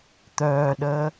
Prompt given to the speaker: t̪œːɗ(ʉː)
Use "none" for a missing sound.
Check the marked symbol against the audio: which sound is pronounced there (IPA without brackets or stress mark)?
əː